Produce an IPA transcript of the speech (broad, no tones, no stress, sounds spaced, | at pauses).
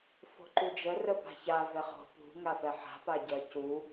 f o̤ ǃ u d͡ʒ ə r ə p a̤ ç a v ɛ χ o̤ p ṳ ŋ a f ɛ ħ a̤ p a ɟ ɜ c u